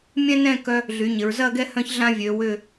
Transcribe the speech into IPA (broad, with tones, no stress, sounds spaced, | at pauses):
mʲ ɛ̃˥ n ɛ̃˥˧ k œ˧ | ɮ y˩˧ ɲ ɪ˩˧ ɹ z ɐ˥˧ ɡ ɛ˥˧ h œ̃˥ ç ɮ ã˥ vʲ ø˩˧ w ʏ˧˩